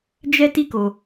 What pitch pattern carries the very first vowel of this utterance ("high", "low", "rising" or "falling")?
high